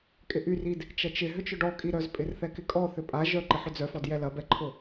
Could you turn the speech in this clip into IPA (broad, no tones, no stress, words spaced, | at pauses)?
kʼɪʔyrid | t͡ʃɐt͡ʃɪ ɦʏt͡ʃʊɖɔkʼi ɾœzpʼɪr θɛkɪkʼɔ θʏpʼa ʒœǃɪ ħʏd͡zœfɔd jɛlɐbɛǃʰʊ